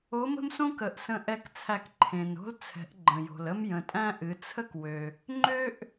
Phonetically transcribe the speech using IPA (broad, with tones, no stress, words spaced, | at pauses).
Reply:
o˧˥mə̤˥msõ˥k ə˩˧ʔsə̃˧ʔɛ˧k t͡sʰæ˧kǃʰẽ˩no̤˥l t͡sʰɛ̤˩˧ʔɡ͡ǃə̃˩jo̤˩l ə˥mjə̃˩˧tʼæ̃˥ʔɨ˩˧ t͡sʰə˥kwø˩ | ŋ͡ǃø˥ʔ